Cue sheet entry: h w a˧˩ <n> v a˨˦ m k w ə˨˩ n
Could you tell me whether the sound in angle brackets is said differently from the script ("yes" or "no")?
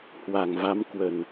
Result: yes